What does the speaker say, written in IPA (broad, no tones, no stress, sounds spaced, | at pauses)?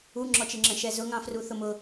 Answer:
u ŋ͡ǁ ɔ t͡ʃ ɪ ŋ͡ǁ ə̃ ʃ ɛ z ʊ ŋ ɑ̃ f r u θ ʊ m ʊ